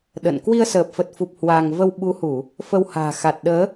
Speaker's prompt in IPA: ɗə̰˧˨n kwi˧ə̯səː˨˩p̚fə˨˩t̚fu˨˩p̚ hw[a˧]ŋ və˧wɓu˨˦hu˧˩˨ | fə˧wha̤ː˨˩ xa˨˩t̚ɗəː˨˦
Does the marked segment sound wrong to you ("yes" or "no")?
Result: no